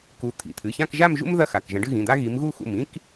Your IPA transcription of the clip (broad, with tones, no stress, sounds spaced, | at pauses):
k u˨˦ t̪ʰ ḭ˩˧˩ t̪ʰ ɨ˩˧˩ ç ã˥˧ k ʒ a˥˧ m ʒ ṵ˥ m ð ɐ˥ x a˩˧˩ k ʒ ɐ̃˨˦ ɖ ɨ˥˧ ɣ ĩ˩˧˩ d̪ a˥ ɣ i˨˦ m ɣ u˥˧ x ṵ˧˩ m ĩ˥ k